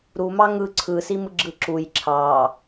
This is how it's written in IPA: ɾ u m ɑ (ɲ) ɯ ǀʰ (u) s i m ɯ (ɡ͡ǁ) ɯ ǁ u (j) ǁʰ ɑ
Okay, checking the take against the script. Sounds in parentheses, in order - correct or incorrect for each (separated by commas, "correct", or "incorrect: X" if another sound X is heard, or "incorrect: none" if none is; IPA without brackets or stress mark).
incorrect: ŋ, incorrect: ɯ, correct, correct